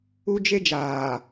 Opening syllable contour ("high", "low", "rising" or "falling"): high